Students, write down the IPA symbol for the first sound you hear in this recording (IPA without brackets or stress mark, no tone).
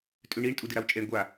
tʼ